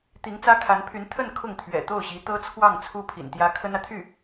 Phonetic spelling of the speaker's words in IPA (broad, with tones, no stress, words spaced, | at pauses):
t̪i˧˥ŋt͡sä˥kʰa˧˥npʰy˧˥n t̪ʰə˥˧n kʰʊ˥˩ŋt̪ʰɥɛ̰˨˩ t̪o˥˩ʊ̯ɕi˧˥t̪ɤ˥ t͡sʰwɑ˥˩ŋt͡sʰu˥ pʰḭ˨˩nt̪jä˥ kʰə˥nä˨t̪ʰy˥˩